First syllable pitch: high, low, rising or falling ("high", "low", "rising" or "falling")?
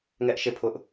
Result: high